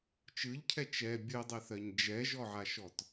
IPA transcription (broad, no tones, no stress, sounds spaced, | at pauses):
t͡ʃ ɯ ʎ cʰ ɛ t͡ʃ ɛ bʲ ɯ dˤ ɛ θ ɜ ɲ d͡ʒ ɛ ʒ ɔ ʕ a ʃ ɔ t